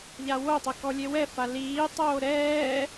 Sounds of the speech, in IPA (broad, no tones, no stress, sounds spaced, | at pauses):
ʎ a w o tˤ ɘ k ɔ lʲ e w ɛ f a l iː tˤ oː ɾ ɛː